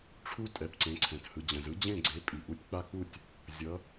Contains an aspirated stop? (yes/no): yes